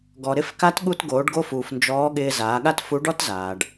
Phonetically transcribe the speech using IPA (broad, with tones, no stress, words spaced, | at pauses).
ɡɔ˩ɾɪ˧˥fka˧˥t ɠu˧tɡoː˩˧ɖɡo˧fuː˩f nd͡ʒɔː˧˥ɠɪː˧ zaː˩˧ɠa˥tfu˧˥ ɖɔ˥tzaː˩ɖ